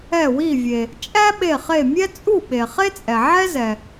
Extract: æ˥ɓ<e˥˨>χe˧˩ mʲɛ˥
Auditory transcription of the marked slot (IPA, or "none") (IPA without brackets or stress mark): e˧˩